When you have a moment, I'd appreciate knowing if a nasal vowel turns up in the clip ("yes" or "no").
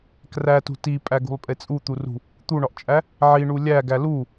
no